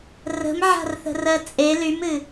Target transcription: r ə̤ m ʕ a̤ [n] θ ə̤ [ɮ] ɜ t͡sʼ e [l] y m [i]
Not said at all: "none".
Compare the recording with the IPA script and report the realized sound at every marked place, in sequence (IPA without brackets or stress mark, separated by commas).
r, r, l, ɨ